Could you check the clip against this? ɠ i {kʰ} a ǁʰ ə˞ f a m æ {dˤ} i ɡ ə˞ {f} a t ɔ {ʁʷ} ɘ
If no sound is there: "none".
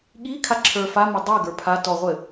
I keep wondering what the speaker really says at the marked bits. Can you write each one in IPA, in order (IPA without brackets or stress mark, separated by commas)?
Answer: kʰ, dˤ, pʰ, ʁʷ